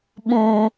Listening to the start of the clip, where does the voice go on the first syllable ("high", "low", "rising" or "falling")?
low